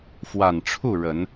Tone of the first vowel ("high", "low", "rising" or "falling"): low